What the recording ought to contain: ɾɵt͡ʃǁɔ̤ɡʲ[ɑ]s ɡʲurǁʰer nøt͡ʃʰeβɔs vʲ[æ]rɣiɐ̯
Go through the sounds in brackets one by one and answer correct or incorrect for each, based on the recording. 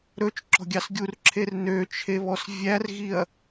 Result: correct, correct

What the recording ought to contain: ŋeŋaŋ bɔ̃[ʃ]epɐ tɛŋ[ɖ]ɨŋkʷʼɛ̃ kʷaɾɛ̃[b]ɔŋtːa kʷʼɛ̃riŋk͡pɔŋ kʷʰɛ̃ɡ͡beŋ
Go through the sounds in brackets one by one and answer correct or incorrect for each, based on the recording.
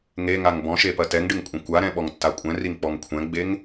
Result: correct, correct, incorrect

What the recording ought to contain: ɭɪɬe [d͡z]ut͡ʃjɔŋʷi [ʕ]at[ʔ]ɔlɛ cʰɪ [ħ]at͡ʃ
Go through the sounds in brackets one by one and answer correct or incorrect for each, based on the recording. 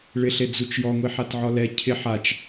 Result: correct, incorrect, incorrect, correct

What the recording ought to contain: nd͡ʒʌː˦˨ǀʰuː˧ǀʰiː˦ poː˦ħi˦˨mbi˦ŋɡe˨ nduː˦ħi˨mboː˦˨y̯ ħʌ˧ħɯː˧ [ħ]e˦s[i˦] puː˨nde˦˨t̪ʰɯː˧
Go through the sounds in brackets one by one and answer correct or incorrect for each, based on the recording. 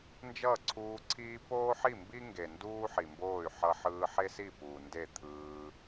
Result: correct, incorrect

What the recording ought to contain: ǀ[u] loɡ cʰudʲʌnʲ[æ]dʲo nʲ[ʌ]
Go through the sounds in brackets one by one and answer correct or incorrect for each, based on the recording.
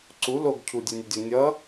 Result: correct, incorrect, correct

